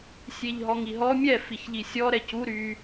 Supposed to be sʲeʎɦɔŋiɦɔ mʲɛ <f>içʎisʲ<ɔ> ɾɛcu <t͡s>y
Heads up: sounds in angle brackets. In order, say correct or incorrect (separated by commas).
correct, correct, incorrect